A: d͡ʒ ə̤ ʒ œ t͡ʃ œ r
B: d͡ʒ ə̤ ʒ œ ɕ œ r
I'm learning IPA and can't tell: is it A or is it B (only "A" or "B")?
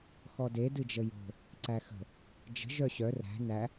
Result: B